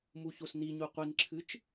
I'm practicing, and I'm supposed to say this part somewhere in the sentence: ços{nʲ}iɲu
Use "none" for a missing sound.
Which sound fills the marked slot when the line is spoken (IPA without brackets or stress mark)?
n